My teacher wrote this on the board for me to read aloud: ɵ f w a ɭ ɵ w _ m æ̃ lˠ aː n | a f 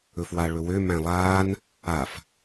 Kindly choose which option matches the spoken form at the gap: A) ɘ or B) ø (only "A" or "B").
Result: B